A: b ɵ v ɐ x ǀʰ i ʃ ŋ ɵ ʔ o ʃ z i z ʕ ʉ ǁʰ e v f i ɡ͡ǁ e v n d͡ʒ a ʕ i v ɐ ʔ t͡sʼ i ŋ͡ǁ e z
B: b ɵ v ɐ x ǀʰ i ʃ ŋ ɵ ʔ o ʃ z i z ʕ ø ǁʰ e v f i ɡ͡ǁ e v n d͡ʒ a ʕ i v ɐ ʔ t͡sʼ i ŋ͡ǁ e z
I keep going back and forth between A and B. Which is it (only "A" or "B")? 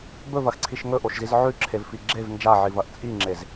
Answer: A